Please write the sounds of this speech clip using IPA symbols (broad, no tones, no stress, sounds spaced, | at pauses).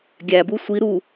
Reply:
ɡʲ æ b u sʷ i ɾ u